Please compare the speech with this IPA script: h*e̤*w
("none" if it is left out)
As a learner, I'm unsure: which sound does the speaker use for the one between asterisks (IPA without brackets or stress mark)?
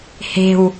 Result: e̤